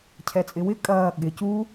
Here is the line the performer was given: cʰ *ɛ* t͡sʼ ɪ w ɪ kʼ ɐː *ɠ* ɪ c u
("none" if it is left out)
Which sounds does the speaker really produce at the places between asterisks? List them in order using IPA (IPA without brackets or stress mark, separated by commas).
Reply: ɛ, ɠ